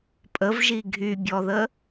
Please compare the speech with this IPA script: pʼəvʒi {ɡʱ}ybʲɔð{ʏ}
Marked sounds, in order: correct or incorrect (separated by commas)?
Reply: correct, incorrect